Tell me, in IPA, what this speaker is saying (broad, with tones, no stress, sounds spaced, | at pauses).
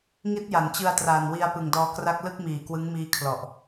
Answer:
ŋ i˦˥ t̚ j a˩˦ n t͡ɕ ɯ˧ a̯ t r aː˨˩ n w i˧ a̯ p ɯ˨˩ ŋ d ɔː˧ k r a˥˩ k̚ l ɯ˥˩ k̚ m iː˨˩ k w ɯ˦˥ ŋ m iː˦˥ kʰ l ɔ˨˩ ʔ